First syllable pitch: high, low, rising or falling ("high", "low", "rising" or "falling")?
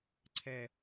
falling